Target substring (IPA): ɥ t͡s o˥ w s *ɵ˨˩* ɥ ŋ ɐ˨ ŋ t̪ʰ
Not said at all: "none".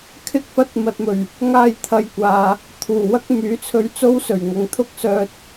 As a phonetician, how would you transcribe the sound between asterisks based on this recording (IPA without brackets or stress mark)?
ɵ˨˩